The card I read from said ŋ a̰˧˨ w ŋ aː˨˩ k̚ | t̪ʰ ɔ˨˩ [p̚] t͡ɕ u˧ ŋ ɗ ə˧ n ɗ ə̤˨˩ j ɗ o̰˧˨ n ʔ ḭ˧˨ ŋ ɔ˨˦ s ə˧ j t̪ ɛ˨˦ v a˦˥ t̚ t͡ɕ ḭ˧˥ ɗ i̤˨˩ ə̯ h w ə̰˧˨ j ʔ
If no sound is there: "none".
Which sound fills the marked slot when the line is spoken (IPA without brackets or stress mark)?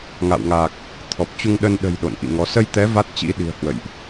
p̚